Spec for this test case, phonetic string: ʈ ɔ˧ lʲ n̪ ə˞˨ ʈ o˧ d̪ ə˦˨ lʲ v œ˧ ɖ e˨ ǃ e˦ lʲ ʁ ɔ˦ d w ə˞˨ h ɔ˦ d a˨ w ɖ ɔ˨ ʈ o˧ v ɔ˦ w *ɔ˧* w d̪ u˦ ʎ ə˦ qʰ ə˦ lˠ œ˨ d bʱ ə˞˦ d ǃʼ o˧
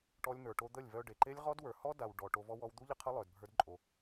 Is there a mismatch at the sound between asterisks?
no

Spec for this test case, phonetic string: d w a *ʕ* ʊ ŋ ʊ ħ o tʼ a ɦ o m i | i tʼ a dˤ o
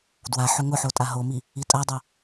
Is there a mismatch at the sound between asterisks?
yes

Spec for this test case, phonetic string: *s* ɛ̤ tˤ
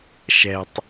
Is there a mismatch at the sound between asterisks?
yes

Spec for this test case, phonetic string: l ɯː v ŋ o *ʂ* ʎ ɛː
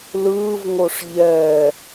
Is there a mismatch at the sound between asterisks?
no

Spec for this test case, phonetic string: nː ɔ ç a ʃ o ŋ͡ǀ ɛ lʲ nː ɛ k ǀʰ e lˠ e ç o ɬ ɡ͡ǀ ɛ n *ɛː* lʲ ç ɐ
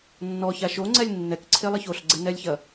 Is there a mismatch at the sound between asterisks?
yes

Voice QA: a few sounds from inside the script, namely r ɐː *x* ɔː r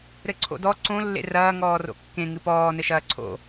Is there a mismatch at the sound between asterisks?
yes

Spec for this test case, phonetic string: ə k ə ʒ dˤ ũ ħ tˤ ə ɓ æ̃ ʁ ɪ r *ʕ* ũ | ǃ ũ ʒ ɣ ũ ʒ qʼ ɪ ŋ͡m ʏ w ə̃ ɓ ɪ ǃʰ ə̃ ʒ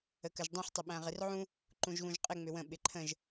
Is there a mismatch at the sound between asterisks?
no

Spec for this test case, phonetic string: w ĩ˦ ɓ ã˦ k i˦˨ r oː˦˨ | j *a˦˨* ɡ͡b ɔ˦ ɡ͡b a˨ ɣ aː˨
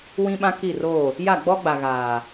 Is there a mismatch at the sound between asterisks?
no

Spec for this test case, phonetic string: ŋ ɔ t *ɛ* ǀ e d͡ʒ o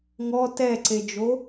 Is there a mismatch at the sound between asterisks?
no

